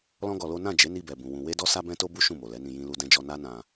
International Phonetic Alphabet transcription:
lɔ̃˦ɡɔ˧lo˦ nã˦˨ d͡ʒe˨˦ni˧bɛ˨ bũ˨ wũ˧ we˦dɔ˦ sa˦bɛ̃˦to˦bu˦ ʃũ˦˨mo˨lɛ˨˦nĩ˧ jĩ˦lu˦dɛ̃˦d͡ʒɔ˦ na˦nã˧

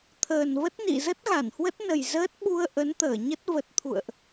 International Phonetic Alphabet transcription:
t̪ʰəː˨˩nvə˦˥t̚nḭ˧˨ zə˦˥t̚ɣa˧˩nhwə˦˥t̚nə˨˩j zəː˦˥t̚ɓu˧ə̯ ʔə˨˦nt̪əː˧˩ɲə˦˥t̚ və˨˩t̚t̪ʰṵ˧˨ə̯ʔ

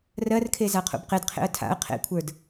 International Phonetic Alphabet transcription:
rɜrkʰeza qʰṵbqedqʰḛə̯ tʰa̰ə̯ qʰḛkʷʰə˞d

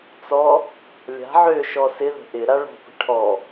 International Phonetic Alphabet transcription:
t͡sɔ | lʲa̤ ʕøʃɔ sɪðə̤ ʔɪ ɾaɭɔ̤pə̤ ʈʰɔ

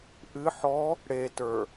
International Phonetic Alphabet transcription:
ʔɨ ħɔ | ɽetə˞

